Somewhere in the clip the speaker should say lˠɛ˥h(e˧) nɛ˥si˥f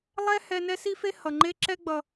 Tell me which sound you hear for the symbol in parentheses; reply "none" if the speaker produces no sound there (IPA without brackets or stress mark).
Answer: ɛ˧